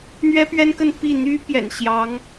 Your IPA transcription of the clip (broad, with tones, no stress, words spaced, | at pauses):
n̪ɥɛ˥pɥɛ˥nkə˥˧n pi˥˩ n̪y˥ pjɛ̰˨˩nɕjɑ˧˥ŋ